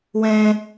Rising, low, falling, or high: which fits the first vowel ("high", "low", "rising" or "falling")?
high